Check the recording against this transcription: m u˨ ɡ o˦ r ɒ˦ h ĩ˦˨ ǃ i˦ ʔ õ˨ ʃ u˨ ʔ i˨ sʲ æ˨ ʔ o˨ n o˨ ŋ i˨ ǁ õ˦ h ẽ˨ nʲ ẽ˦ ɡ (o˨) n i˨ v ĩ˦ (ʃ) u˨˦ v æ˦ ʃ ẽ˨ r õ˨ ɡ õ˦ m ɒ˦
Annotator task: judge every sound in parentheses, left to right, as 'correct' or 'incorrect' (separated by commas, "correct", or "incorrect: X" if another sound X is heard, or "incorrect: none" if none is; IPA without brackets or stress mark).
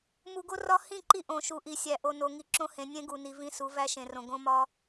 incorrect: u˨, incorrect: s